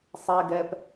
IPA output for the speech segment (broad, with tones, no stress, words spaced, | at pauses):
sˤɛ˨ɡɛ˨p